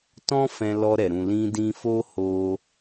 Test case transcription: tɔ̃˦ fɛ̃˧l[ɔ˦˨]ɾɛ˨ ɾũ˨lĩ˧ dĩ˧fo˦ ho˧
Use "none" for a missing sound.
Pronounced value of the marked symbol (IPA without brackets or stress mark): ɔ˧